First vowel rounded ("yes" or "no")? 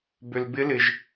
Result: yes